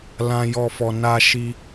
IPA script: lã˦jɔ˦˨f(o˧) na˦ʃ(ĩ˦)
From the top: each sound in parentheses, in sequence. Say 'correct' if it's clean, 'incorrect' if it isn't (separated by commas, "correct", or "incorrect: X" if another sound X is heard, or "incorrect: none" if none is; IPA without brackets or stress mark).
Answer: incorrect: ɔ˧, incorrect: i˦